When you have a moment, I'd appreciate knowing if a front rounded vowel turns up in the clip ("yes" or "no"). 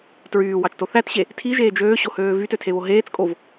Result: yes